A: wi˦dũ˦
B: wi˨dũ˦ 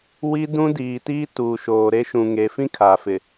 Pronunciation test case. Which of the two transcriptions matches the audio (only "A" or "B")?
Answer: A